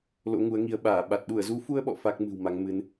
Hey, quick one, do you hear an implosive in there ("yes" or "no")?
yes